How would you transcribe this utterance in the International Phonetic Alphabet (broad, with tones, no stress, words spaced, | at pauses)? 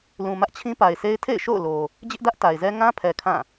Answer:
lũ˨ mä˦ʔt͡ɕʰĩ˦pa˨ɪ̯se˦ɪ̯ tʰḛ˦˨ɪ̯ʃo̰˦˨ʊ̯lo˨ | d͡ʑɪ˦ʔdä˦ʔ ta˨ɪ̯zɛ˦ ŋã˦pʰɛ˨ kʰã˦˨